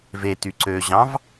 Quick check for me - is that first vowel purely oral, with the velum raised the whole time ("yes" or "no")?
yes